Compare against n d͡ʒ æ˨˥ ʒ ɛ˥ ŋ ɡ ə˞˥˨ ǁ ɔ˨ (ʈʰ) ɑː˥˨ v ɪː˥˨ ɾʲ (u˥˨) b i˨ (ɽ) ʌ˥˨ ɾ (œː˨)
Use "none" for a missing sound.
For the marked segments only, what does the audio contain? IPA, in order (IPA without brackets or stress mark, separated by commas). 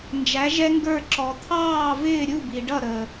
t̪ʰ, u˥˨, ɖ, əː˨